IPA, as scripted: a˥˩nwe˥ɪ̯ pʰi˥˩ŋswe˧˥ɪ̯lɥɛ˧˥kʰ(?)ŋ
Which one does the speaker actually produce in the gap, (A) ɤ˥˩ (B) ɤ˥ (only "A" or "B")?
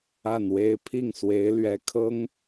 B